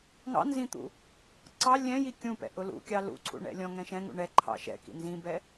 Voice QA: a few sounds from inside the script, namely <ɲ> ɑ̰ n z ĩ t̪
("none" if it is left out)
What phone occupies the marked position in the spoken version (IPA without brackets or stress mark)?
ŋ